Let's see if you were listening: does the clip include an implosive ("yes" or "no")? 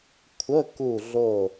no